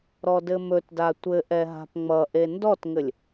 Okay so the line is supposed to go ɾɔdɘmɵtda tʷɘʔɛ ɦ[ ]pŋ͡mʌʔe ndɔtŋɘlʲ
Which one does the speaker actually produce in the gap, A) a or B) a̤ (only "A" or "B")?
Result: B